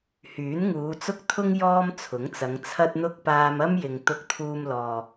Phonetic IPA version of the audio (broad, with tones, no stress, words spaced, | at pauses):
hyː˨˥nŋuː˨˧t͡sʊ˥k̚t̪ʰʊ˥ŋ jɔː˥mt͡sʰʊ˨˥ŋt͡sɐ˨˧ŋ t͡sʰɐ˧t̚n̪ʊ˧k̚ paː˧mɐ˥mjɪ˨ŋ t̪ʊ˧k̚t̪ʰuː˧mlɔː˨